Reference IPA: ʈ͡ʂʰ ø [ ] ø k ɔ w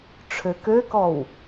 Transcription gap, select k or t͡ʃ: k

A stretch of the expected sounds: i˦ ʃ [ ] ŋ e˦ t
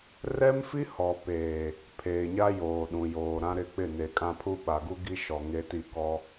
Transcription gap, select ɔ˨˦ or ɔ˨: ɔ˨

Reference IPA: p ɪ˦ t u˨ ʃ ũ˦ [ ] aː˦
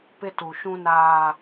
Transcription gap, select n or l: n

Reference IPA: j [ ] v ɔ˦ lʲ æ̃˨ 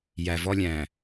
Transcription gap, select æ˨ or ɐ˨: æ˨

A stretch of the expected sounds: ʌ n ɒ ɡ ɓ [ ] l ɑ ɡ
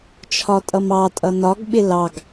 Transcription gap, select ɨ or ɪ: ɪ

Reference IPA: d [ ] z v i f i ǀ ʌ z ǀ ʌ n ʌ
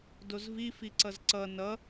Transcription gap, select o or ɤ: o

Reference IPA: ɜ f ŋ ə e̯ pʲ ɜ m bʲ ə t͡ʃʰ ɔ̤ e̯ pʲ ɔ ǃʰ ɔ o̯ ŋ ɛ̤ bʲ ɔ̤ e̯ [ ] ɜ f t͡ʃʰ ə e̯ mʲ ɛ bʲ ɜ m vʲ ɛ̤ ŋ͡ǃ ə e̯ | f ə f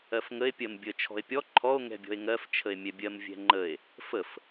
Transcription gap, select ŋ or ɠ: ŋ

